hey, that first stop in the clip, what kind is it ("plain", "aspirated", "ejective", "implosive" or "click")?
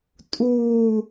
ejective